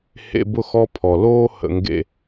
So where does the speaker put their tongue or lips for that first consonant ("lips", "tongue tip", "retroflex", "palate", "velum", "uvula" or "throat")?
throat